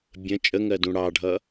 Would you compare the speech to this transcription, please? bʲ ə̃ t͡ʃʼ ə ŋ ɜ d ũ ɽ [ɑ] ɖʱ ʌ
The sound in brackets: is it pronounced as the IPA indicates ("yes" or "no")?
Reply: yes